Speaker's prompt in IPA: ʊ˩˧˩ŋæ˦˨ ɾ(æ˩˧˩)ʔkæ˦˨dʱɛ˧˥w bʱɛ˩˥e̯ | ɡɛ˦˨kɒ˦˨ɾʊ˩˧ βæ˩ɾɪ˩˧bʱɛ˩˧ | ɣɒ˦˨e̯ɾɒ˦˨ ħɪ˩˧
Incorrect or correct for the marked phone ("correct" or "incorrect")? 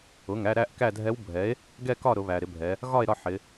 incorrect